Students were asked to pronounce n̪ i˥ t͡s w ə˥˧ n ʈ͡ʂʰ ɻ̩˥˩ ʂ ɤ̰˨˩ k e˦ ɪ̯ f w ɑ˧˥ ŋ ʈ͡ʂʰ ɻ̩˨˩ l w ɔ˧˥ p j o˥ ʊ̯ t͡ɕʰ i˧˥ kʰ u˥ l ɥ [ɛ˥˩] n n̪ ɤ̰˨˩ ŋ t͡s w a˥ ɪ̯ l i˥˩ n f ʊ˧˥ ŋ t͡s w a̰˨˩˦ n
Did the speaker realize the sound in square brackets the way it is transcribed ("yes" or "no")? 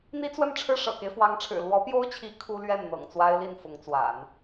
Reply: yes